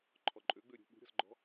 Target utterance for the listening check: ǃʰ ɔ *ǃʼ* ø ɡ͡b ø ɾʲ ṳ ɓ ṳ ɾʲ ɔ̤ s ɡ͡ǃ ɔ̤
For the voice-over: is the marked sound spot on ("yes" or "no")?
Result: yes